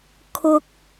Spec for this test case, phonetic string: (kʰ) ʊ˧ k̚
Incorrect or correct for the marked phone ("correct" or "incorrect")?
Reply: correct